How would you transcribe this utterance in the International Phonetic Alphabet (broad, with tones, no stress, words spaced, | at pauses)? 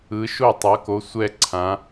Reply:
ɯ˨˥ʃo˥˨ tˤʌ˨˥ko˨˥ sʷɛ˥˨ǀʰã˨˥